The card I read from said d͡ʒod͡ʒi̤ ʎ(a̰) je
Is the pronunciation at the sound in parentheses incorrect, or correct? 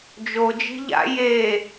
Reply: correct